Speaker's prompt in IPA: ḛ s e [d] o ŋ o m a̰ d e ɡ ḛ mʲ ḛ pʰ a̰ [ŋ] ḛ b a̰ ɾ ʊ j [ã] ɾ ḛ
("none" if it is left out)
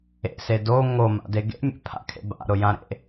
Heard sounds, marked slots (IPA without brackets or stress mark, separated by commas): d, kʰ, ã